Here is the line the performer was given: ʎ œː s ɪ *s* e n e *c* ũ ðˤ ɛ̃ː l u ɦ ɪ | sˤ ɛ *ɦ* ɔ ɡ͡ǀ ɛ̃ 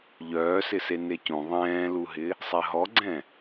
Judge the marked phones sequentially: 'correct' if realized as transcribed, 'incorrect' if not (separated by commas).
correct, correct, correct